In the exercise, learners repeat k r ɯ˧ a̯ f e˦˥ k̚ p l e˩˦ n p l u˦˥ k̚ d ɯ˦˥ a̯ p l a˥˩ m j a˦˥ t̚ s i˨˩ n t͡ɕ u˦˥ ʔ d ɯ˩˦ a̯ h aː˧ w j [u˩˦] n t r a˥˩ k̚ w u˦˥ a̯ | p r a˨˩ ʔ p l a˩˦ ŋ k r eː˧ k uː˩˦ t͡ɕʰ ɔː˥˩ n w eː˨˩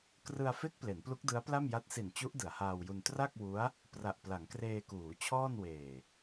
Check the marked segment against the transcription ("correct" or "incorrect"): incorrect